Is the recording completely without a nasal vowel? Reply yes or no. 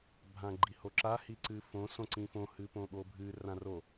no